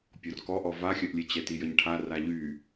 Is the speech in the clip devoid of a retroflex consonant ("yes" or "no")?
no